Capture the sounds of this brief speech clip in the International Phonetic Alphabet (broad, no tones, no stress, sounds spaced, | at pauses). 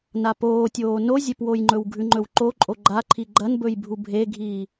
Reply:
n a p oː tʲ oː n o zʲ e p w o j ŋ͡ǃ ɵ w ɡʱ ʉ ŋ͡ǃ ɵ w ǃ o ǃʼ o ɡ͡ǃ a ǃʰ i ɡ͡ǃ ɐ n b ɵ j bʱ u bʱ e ɡʱ iː